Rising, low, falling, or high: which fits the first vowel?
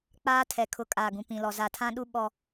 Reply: high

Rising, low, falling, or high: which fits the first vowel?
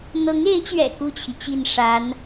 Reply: rising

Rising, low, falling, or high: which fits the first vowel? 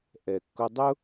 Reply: low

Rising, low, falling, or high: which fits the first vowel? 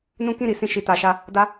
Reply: high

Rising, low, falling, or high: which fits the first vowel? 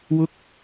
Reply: high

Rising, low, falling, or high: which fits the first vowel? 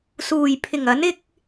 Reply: low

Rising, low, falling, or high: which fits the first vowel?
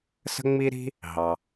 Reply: high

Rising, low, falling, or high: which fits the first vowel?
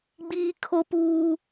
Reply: high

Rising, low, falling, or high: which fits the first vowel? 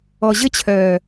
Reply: low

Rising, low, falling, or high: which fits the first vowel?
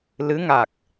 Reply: rising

